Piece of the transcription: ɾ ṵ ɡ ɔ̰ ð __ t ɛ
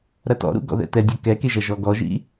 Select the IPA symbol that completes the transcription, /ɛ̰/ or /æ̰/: ɛ̰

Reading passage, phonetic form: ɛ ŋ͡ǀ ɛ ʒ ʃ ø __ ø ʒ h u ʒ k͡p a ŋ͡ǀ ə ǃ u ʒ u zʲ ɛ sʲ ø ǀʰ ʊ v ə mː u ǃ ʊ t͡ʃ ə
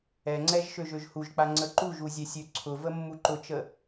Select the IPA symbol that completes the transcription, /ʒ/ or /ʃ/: ʒ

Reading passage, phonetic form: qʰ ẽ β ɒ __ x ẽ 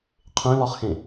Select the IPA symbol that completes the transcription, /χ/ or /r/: χ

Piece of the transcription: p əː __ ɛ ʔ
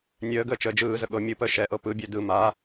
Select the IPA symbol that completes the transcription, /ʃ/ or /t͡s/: ʃ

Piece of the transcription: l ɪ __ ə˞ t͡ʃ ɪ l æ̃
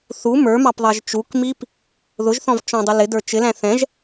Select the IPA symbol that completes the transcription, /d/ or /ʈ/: d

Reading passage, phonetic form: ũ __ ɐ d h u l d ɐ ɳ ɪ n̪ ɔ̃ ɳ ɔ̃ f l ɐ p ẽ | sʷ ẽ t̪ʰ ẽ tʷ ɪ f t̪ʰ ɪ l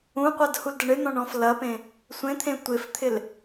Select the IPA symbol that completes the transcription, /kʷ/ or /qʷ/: qʷ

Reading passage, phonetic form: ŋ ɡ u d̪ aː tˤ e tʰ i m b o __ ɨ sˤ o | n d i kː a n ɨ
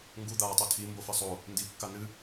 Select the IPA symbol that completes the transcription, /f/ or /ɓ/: f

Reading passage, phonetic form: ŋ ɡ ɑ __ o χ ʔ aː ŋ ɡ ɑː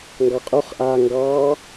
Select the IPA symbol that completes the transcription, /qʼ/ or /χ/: qʼ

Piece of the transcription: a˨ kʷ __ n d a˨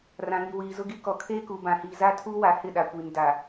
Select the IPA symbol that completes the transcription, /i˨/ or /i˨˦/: i˨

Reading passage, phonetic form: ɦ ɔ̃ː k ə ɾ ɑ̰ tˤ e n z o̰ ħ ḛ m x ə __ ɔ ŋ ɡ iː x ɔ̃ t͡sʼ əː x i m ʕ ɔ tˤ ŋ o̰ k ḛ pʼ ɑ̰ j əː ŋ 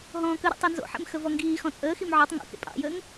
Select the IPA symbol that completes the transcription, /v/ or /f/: v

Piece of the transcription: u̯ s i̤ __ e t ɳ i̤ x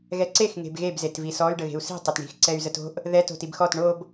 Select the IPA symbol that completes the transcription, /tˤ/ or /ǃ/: tˤ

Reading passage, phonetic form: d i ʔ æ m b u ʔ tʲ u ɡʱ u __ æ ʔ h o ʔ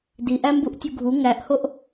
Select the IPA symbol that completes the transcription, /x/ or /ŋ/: ŋ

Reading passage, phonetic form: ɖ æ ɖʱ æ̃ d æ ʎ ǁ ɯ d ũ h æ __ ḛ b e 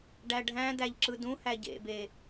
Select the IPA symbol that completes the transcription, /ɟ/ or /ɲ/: ɟ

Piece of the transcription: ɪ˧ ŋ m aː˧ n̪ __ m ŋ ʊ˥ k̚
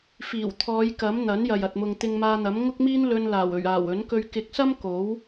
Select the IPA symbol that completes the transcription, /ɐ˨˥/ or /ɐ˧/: ɐ˨˥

